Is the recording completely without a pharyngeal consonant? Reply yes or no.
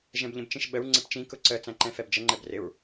yes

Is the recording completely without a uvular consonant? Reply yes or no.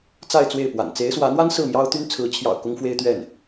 yes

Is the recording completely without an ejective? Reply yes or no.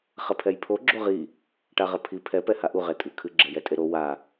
no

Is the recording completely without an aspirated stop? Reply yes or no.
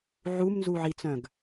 yes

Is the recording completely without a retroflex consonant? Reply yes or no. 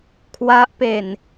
yes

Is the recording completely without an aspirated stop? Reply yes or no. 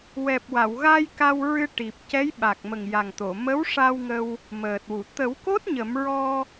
yes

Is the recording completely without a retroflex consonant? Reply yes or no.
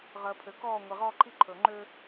yes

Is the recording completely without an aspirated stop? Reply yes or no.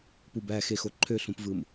no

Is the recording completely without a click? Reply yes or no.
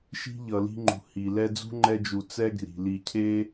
no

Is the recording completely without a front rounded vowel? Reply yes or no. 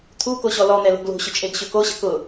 no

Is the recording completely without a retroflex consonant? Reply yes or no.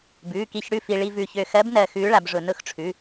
no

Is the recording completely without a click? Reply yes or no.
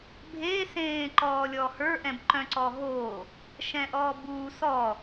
no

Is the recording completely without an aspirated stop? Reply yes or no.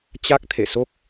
no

